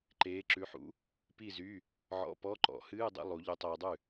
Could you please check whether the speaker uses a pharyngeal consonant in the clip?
yes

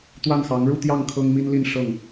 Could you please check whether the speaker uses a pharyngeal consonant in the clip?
no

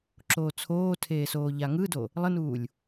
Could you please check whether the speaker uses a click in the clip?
yes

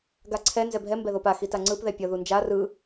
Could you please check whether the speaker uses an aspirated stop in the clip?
yes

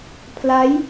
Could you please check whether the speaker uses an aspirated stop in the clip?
yes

